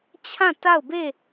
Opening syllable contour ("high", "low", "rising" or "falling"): falling